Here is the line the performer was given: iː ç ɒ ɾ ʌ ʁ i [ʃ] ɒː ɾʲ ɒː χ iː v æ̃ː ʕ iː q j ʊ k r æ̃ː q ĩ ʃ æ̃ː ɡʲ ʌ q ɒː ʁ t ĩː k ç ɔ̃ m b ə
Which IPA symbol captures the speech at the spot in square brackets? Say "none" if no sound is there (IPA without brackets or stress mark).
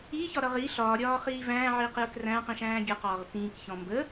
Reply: ɬ